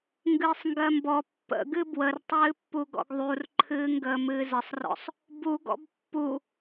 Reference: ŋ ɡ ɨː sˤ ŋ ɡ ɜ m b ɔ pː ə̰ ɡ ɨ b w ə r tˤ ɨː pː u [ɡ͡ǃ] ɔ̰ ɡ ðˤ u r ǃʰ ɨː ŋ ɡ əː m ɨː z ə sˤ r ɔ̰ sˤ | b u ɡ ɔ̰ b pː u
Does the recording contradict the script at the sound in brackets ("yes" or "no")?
yes